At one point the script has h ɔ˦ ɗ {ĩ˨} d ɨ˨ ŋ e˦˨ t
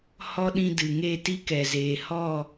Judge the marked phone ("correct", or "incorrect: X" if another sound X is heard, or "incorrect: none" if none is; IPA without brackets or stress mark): incorrect: ĩ˧